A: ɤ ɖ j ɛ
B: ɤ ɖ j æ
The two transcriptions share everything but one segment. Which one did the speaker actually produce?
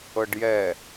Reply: A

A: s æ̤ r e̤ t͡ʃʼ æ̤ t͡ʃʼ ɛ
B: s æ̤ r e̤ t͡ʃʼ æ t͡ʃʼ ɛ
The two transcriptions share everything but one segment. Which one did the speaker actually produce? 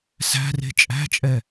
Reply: A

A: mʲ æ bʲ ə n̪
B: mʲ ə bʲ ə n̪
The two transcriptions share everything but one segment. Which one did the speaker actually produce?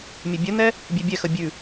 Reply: B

